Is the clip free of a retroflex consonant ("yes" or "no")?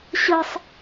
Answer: yes